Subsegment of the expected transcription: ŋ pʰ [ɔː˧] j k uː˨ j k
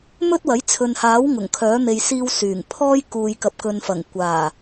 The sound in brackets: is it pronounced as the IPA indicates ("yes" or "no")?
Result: no